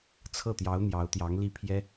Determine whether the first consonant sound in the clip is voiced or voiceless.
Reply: voiceless